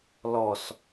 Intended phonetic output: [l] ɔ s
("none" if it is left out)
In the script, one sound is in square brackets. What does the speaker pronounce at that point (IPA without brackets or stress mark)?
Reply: l